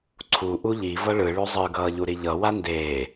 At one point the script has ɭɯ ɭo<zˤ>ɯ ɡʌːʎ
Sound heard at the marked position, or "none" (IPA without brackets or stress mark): zˤ